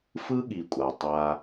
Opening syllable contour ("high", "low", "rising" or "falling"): high